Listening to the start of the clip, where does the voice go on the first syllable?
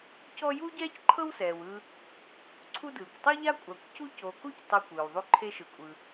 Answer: high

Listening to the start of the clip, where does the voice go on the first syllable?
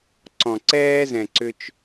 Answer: low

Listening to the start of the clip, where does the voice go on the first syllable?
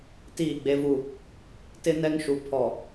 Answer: falling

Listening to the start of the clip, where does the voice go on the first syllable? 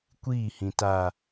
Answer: falling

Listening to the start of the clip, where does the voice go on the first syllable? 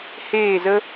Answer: falling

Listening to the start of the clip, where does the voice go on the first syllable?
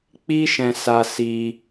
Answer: high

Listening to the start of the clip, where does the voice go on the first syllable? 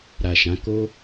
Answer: low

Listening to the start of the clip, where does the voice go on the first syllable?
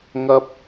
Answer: high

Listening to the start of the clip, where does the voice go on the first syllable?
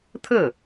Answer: falling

